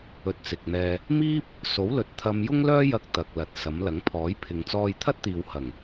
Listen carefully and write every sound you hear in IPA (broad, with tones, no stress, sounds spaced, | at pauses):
ɵ˧ t̚ t͡s ɪ˨ k̚ n̪ ɛː˧ | m iː˥ p̚ | s o˨˥ w l ɵ˨ t̚ t̪ʰ ɐ˧ m j ʊ˥ ŋ l œː˥ j ɐ˧ k̚ t̪ ɐ˨ k̚ l ɐ˨ t̚ s ɐ˨˥ m l ɐ˨˥ ŋ pʰ ɔː˨˥ j pʰ ɪ˨˧ ŋ t͡s ɔː˧ j t̪ʰ ɐ˥ t̚ t̪ iː˨ w h ɐ˨˩ ŋ